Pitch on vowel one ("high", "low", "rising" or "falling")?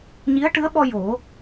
rising